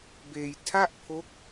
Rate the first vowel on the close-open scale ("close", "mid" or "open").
mid